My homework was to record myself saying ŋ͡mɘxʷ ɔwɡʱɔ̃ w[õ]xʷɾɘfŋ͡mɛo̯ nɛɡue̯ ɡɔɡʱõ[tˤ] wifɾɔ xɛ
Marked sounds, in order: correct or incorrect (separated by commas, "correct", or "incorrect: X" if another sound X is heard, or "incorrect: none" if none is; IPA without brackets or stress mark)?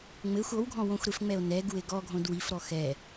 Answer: correct, incorrect: d